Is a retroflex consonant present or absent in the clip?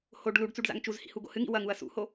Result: present